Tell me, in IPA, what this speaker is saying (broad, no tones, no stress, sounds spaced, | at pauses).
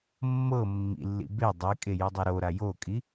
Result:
mː ɤ mː ḭ lː ḭ b e dˤ i kʼ e j ɯ dˤ a ɾ o ɾ a j o kʼ i